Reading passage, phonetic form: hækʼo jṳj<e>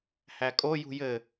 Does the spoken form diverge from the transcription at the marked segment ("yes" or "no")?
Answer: yes